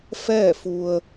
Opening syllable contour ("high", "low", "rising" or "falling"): falling